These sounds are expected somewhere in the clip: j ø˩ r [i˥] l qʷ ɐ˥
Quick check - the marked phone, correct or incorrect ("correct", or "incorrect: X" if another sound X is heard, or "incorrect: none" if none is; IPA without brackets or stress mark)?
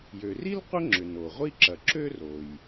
correct